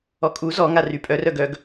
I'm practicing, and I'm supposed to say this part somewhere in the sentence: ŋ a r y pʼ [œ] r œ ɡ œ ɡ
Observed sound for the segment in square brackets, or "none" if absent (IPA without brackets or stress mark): œ